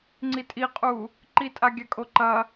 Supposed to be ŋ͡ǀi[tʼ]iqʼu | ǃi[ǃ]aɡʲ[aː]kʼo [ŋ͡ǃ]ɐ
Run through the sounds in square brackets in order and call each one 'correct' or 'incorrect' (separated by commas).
correct, incorrect, incorrect, incorrect